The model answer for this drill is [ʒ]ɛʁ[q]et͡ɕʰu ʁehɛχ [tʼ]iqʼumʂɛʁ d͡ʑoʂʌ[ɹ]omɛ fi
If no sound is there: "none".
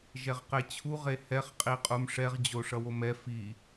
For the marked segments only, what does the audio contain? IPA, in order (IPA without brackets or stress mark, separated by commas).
ʒ, q, qʼ, w